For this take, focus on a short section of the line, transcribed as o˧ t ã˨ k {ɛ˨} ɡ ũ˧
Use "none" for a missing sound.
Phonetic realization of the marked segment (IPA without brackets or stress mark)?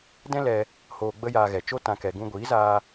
ɛ˨